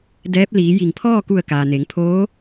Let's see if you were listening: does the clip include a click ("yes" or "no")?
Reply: no